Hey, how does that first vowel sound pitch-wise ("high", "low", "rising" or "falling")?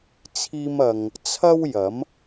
high